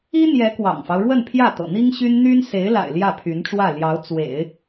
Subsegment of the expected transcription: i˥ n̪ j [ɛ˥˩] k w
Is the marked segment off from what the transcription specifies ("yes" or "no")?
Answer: yes